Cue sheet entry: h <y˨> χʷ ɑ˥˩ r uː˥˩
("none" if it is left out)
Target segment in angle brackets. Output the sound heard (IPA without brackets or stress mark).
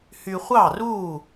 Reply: y˨